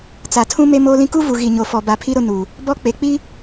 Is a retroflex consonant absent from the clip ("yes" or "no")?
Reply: yes